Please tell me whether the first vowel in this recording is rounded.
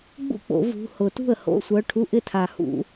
yes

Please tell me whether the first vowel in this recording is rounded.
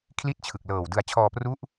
no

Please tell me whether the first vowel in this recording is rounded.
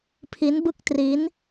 no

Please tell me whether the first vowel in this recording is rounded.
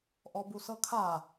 yes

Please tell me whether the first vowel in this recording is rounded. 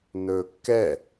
yes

